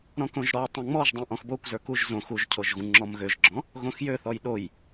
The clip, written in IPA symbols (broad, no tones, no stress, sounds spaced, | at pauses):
ɾ ɔ̃ k õ ʒ ɾ ɔ tˤ õ ŋ͡m ɔ ʒ dˤ õ ʔ ɔ̃ x b o kʷ z ə˞ k u ʒ z õ x u ʒ cʰ o ʒ ɣ ũ ŋ͡ǁ ɔ m ɣ ø ʒ ɡ͡ǁ ɔ̃ | ɣ õ x j ø θ ɔ j ɗ o j